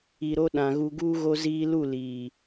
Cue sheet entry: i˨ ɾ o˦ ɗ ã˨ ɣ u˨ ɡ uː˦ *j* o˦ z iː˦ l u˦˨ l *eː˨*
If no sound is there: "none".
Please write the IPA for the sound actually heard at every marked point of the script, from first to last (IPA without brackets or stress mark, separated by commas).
ɣ, iː˨